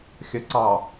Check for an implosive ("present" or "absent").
absent